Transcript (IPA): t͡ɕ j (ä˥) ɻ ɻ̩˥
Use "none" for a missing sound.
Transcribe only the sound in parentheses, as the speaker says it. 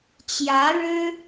ä˧˥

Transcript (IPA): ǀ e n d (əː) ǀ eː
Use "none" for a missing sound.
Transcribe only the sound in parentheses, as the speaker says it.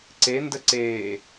ə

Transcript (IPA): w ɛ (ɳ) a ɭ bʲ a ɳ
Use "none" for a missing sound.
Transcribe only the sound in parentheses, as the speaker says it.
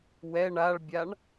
ɳ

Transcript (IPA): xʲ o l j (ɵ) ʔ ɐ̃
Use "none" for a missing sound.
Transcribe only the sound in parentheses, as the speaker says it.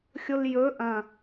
ɵ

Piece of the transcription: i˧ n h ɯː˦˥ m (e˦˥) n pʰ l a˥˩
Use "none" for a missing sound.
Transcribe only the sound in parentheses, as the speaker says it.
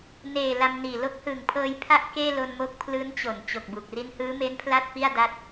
e˦˥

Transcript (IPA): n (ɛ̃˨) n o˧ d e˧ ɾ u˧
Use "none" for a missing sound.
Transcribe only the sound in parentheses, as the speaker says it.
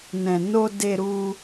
ɛ̃˨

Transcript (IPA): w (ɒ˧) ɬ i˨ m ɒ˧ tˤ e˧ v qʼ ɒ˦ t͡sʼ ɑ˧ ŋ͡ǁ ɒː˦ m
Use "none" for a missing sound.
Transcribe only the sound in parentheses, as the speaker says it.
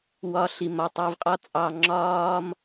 ɒ˧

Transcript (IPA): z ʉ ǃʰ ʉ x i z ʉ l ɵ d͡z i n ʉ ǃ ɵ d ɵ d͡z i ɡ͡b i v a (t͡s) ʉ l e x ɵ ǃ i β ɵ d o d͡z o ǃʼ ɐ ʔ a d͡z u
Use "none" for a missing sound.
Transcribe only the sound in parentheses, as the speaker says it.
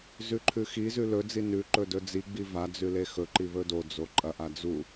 d͡z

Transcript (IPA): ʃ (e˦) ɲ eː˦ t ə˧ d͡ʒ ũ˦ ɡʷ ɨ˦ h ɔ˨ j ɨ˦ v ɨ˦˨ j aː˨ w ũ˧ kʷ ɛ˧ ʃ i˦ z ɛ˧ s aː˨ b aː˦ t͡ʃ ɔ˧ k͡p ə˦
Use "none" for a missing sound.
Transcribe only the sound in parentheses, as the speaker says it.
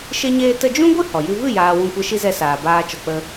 e˦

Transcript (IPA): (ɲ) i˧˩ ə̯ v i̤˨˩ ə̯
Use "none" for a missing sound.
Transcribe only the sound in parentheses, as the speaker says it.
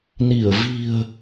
n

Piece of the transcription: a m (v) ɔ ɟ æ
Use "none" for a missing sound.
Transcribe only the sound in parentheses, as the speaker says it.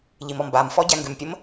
f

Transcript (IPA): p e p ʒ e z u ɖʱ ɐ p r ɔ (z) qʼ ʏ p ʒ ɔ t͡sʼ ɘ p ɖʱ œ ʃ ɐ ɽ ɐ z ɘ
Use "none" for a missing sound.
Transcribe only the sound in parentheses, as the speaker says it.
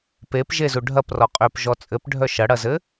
none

